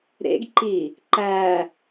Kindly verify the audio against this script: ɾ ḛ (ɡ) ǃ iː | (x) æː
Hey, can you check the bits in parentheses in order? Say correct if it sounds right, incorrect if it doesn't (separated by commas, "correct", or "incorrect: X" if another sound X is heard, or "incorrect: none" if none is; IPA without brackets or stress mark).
correct, incorrect: ǃ